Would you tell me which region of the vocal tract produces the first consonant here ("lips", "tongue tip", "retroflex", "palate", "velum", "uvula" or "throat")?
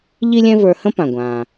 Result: palate